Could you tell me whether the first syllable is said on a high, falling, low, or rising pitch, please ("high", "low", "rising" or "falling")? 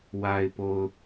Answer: low